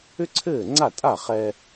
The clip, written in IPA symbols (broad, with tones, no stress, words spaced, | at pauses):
ʏ˥ǀʰɘː˥˩ŋ͡ǀa˥˩tʼa˥˩ χɛ˧